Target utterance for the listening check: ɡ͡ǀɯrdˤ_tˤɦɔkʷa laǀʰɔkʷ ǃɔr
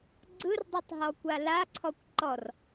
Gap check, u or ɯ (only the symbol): ɯ